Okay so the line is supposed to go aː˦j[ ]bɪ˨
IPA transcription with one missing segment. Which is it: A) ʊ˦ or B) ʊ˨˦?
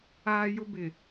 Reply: A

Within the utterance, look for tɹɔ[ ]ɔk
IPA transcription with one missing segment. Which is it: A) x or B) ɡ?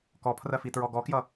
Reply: B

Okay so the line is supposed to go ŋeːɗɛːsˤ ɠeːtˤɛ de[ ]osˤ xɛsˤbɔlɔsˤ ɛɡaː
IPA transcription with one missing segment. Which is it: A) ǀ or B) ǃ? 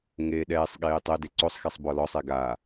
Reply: A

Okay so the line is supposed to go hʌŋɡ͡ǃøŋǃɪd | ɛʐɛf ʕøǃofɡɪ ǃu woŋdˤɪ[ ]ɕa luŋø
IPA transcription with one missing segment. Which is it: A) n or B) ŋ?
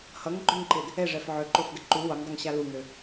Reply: B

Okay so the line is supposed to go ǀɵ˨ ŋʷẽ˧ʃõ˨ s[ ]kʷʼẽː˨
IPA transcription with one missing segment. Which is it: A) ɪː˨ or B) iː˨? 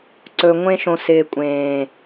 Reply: A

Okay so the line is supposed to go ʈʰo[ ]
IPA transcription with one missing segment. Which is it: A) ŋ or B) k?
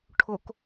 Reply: B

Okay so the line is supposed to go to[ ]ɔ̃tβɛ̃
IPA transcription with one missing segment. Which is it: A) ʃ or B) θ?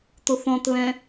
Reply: B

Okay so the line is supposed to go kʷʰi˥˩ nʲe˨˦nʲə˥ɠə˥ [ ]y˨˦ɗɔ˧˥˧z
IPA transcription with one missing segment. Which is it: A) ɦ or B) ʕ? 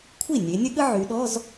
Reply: B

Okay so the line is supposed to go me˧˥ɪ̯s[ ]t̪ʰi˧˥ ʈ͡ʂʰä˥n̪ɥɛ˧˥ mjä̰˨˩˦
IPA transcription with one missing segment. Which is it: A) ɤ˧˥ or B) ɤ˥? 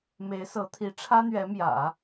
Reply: A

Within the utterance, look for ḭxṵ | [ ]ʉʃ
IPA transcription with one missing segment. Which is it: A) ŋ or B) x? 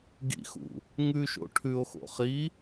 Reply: A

